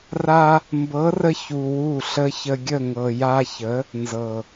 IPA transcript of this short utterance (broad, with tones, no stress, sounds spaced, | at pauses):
r a˧ | m b ɤ˨˦ r ə˧ ç u˨ w u˦˨ ɬ ə˦ ç ə˧ ɡʲ ə˦˨ ŋ ɤ˨ j a˧ ç ə˨˦ | n z ɤ˨